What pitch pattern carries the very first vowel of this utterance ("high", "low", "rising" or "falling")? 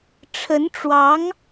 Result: rising